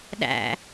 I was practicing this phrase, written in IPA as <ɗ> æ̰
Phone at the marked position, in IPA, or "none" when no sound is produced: ɗ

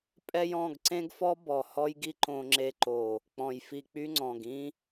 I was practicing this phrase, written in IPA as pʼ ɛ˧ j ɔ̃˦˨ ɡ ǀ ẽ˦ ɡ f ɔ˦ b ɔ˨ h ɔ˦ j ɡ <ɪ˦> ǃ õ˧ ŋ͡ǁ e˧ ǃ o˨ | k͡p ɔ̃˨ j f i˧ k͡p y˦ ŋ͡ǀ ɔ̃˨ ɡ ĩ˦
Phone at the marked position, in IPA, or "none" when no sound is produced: i˦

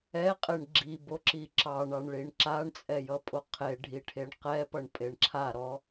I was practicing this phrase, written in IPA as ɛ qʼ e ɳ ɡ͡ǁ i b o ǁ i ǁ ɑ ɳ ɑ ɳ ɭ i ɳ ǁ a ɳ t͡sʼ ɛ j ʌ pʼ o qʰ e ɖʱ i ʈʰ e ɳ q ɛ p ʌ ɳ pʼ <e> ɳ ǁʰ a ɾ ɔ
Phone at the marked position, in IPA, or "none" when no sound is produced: e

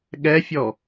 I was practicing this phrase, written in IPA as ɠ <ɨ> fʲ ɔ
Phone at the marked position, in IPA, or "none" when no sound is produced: ɛ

